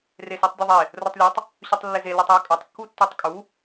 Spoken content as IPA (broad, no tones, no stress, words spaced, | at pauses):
resotˤdʲɵðˤe | rotˤlʲotˤ | ɕøtˤlːeze lœtˤjɵkʼœtˤ kːutːøtˤkʼu